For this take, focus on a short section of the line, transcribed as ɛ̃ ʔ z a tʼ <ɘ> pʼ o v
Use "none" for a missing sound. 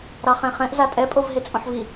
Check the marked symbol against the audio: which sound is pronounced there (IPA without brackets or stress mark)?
ɛ